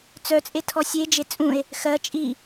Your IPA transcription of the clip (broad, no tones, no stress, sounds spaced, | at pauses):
t͡s œ t͡sʼ e tʰ ɔ sʲ e d͡ʒ e t͡sʼ ũ e̯ | x ɜ t͡ʃʼ i